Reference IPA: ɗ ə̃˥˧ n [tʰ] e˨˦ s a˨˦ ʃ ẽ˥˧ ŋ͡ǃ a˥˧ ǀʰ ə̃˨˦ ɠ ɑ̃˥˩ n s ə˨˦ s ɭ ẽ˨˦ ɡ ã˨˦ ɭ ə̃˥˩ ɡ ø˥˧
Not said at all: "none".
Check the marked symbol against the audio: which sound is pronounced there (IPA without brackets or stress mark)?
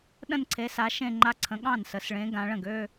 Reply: ǀʰ